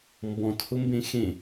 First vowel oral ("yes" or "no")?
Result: no